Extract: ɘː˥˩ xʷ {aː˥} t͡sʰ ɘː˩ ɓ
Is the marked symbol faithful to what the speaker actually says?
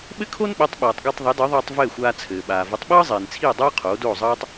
no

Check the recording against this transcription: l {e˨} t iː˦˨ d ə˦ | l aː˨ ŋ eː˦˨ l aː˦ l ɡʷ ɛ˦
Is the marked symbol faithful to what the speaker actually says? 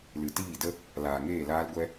no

